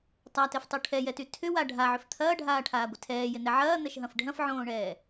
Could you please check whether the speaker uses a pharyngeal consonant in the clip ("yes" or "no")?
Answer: yes